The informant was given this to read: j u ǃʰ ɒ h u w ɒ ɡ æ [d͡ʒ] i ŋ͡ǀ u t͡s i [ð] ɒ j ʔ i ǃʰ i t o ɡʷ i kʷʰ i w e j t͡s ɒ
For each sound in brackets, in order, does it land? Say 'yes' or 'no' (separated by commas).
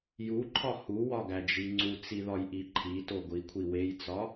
yes, yes